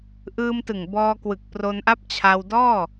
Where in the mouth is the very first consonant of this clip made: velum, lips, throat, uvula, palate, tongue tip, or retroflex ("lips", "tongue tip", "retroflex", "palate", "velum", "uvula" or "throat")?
throat